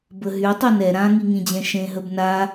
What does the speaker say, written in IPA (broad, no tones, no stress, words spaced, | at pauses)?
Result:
bəɦy tˤønɛ ɾãŋiŋĩd͡ʑɛ̃ ʃẽɦəb na